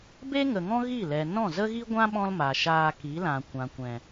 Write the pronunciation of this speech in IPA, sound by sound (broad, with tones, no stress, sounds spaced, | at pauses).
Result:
b e˦ ŋ ə˨ ŋ ɔ̃˦ ɣ i˦˨ l ɛ˨ n ɔ̃˦˨ z ə˦ ɣ i˦ ɡʷ ã˦ ɓ ɔ̃˦ l m a˨ ʃ aː˧ k i˨˦ l ã˨ kʷ ã˨ kʷ ɛ̃˨